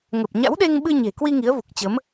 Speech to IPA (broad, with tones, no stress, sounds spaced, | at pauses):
ŋ ə˨˩ p̚ ɲ a̰˧˥ w ɗ e˧ ŋ ɓ ɨ˧ ɲ e̤˨˩ k w i˧ ŋ i˨˦ ə̯ v u˨˩ k̚ t͡ɕ ə˨˦ m